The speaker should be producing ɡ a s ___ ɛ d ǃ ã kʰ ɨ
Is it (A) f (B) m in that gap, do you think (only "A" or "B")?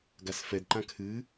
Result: A